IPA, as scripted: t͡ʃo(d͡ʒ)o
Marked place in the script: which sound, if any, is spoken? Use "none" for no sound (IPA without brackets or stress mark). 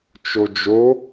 d͡ʒ